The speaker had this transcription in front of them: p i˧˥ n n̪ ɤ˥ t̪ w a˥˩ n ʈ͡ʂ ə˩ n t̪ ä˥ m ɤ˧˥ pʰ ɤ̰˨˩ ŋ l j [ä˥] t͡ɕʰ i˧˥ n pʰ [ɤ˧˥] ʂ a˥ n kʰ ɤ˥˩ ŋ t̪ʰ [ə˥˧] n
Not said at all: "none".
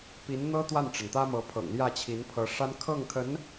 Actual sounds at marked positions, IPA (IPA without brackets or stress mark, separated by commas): ä˥˩, ɤ˧˥, ə˧˥